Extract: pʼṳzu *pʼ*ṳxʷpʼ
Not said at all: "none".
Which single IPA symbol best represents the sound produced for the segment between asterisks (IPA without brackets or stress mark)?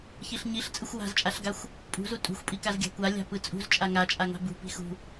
tʼ